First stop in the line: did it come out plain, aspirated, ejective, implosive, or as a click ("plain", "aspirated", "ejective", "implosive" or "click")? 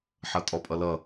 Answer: ejective